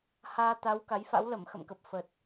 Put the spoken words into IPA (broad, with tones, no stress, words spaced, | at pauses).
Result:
haː˧ t̪a˨˦w ka˨˦jfa̰˧˥w lə˧˩mxə̰˧˨mkə˨˩p̚ fə˨˩t̚